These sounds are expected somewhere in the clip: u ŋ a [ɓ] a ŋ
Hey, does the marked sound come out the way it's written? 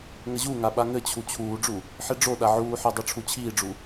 yes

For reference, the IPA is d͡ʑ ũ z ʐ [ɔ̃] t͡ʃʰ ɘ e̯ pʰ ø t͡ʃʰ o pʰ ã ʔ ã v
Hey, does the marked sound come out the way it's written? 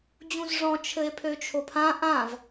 yes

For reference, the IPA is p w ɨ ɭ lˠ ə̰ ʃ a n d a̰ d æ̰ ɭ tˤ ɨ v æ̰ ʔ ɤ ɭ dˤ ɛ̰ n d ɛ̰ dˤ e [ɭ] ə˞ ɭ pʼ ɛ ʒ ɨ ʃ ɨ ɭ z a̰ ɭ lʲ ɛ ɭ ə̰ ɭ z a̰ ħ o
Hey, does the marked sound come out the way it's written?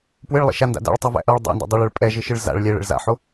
yes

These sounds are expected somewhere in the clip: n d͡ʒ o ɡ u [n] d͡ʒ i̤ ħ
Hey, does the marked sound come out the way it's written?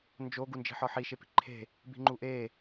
yes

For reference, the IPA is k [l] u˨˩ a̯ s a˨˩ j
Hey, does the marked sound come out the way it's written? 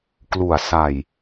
yes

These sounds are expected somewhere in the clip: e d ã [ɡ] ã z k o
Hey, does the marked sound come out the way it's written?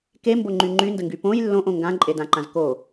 no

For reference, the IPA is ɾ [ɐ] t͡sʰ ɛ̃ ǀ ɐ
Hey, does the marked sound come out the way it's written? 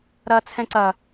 yes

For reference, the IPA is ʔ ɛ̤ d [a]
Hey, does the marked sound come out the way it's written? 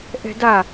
yes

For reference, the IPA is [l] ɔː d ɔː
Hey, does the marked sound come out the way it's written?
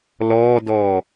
yes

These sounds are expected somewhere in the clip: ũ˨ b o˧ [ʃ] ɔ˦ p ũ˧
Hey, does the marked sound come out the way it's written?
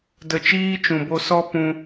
no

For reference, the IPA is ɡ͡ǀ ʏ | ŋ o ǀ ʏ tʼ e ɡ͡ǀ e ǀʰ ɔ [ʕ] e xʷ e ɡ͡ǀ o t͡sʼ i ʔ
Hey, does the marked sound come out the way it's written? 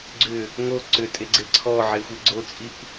yes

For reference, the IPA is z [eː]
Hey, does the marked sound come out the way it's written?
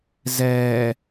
no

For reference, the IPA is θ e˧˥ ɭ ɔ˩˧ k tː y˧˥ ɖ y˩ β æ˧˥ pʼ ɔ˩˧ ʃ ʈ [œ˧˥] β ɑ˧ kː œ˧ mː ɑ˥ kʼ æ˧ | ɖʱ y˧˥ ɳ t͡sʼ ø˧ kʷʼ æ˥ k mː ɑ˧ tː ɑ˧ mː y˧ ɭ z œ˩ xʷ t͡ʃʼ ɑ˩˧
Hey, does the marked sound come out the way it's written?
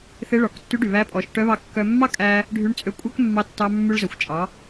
yes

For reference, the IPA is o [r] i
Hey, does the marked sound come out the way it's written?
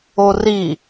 yes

